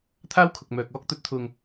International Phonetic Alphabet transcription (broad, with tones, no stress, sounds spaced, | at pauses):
t̪ʰ aː˥ w kʰ ʊ˨ k̚ m œː˨ k̚ ɔː˧ k̚ t̪ ɵ˨˥ t̚ t̪ʰ ʊ˨ ŋ